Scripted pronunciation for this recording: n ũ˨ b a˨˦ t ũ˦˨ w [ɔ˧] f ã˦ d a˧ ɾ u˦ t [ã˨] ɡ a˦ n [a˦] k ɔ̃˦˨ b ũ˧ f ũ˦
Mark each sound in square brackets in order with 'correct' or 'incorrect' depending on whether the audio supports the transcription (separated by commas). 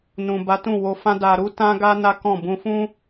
incorrect, incorrect, correct